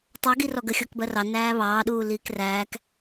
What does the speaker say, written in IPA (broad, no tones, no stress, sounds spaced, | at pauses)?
tˤ ɜ ɡ i r ɔ ɡ ə xʲ ɔ k b ɜ r ɑ n æː β ɑː ɗ uː l iː k r æː k